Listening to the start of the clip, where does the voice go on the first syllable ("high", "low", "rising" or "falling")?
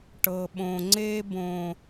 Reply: low